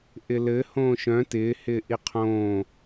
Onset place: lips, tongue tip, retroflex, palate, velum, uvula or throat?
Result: throat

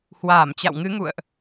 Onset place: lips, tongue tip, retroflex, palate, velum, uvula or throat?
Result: throat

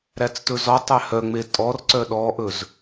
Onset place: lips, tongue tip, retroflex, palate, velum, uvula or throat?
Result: tongue tip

